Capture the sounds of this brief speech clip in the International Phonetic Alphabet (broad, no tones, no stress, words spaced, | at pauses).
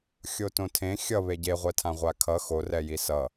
xʲotõtʰẽ xʲʌβe ɟeʁʷɛtʰã ʁʷakʰʌ xorɛji sʌ